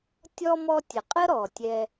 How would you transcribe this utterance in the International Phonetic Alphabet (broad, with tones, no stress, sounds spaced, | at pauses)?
tʲ ɔ˥ m ɔ˦ tʲ ə˩ qʼ ə˥ ɾ ɔ˩ tʲ ɛ˨